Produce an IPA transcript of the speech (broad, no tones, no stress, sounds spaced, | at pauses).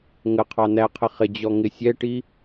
ŋ ə qʰ ɑ n æ qʰ ɪ χ ɪ d͡ʑ ɔ ŋ ɪ sʲ ɛ ʈ i